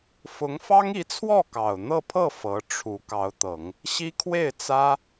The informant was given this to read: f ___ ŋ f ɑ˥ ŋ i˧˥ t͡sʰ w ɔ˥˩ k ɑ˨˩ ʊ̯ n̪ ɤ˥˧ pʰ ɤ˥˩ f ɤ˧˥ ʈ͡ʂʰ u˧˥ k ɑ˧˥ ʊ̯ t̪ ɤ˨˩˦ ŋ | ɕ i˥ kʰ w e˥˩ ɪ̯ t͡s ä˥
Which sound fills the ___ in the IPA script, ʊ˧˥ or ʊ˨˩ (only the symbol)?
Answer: ʊ˧˥